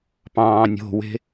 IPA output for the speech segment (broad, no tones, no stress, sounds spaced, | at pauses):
p ɑ̃ː nʲ o̤ w e̤